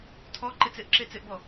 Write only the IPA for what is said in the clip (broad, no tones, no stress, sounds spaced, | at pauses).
tʰ ɔ ǃ ɪ t͡s ɪ ʔ ǁ e t͡s ɪ ʔ b ɔ